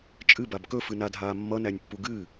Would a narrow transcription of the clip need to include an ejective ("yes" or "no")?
yes